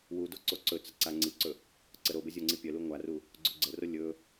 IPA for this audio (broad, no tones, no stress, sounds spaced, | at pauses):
w u d o ǀ o ǀ ɵ t͡s ə ǀ a ŋ͡ǀ i ǀ ɵ | ǀ ə ɾ o b ə zʲ o ŋ͡ǀ i pʲ œ l u ŋʷ a r u | ɡ͡ǀ ɵ ɡ͡ǀ ə r o lʲ ɵ